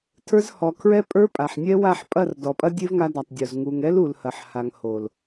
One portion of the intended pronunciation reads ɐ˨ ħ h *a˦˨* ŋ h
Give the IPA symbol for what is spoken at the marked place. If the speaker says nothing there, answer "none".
a˨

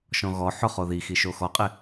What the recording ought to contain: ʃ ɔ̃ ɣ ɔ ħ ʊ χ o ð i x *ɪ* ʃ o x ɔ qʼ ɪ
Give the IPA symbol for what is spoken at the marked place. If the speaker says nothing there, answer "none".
i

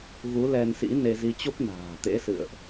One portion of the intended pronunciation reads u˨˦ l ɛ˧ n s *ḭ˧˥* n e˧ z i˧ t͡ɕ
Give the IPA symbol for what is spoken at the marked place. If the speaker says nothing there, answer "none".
ḭ˧˥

